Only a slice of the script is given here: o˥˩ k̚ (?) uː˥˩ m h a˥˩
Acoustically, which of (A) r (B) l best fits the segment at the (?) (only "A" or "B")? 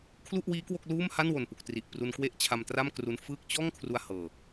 B